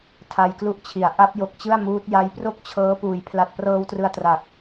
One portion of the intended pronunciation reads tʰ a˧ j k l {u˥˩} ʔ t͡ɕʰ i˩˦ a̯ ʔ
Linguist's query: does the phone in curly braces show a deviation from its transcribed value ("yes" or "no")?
no